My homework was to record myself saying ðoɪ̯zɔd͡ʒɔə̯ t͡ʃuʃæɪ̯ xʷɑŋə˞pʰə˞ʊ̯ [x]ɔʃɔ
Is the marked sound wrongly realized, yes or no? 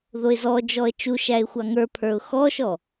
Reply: no